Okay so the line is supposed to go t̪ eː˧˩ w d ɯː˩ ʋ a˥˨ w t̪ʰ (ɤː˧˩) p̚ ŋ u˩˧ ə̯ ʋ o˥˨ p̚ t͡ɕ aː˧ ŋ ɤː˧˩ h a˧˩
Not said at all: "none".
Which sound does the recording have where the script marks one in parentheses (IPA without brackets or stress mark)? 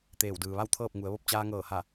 ɤː˥˨